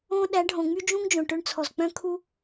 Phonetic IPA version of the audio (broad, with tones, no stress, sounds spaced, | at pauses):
õ˧ ɗ æ˨˦ ɖʱ õ˨ ŋ͡m y˦ d͡ʒ ũ˦ ŋ d͡ʒ õ˨ ʈ ɵ˧ ɳ t͡sʰ ɔ˨ z k͡p œ̃˦ kʰ u˦